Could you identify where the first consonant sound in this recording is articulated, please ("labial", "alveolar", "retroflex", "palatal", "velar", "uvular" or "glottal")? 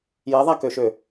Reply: palatal